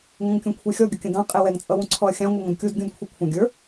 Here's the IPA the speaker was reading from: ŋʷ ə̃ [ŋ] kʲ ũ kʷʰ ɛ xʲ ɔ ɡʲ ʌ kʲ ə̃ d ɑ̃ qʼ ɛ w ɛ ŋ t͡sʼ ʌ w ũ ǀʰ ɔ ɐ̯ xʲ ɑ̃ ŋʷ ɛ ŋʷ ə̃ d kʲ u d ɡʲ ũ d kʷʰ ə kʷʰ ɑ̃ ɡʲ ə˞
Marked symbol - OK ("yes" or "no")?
yes